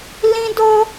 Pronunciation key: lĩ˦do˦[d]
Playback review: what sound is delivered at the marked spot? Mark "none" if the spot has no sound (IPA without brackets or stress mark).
none